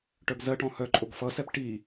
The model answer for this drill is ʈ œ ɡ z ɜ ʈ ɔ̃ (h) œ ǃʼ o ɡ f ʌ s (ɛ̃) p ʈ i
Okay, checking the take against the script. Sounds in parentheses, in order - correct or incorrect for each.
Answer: correct, incorrect: ɛ

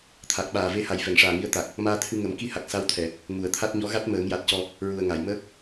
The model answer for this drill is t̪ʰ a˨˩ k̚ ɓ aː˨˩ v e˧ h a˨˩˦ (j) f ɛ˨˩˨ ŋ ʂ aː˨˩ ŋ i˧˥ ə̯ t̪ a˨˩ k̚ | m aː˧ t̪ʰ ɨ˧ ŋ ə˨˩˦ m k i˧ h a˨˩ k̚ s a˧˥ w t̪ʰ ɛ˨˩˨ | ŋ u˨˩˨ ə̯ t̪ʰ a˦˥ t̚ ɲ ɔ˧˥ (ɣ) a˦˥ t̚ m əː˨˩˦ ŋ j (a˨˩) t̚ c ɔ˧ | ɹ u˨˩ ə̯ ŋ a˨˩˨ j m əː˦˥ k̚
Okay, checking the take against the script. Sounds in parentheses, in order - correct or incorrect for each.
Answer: correct, correct, correct

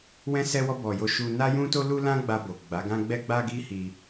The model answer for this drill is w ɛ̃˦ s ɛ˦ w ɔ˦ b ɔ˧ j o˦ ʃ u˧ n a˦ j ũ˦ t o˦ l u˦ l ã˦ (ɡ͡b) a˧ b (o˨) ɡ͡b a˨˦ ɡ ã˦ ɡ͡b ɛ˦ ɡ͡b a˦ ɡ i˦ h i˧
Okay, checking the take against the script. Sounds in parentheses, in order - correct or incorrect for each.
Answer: correct, correct

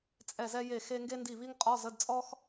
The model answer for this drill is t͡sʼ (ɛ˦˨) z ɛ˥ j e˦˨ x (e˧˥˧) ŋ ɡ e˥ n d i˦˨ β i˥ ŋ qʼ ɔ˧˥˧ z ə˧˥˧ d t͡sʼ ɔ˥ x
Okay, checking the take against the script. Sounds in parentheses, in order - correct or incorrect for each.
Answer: correct, incorrect: e˥

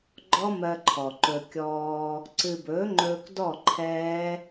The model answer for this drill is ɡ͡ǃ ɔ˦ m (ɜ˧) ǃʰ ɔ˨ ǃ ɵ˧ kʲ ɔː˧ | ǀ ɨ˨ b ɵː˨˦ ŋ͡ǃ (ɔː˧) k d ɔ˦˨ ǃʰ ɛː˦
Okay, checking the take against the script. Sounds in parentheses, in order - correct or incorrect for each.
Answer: correct, incorrect: ɵː˧

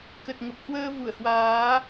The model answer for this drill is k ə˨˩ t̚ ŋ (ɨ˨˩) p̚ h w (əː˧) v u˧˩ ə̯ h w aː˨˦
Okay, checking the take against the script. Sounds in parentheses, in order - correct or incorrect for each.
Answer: incorrect: ə˨˩, correct

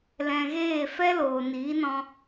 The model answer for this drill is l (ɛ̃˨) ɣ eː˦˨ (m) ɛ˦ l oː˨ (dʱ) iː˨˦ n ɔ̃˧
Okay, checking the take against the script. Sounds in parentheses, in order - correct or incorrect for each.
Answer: correct, incorrect: f, incorrect: n

